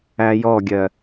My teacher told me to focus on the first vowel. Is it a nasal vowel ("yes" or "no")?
no